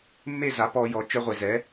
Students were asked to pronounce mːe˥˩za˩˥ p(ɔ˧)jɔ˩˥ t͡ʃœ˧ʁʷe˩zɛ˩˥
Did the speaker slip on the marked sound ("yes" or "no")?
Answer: no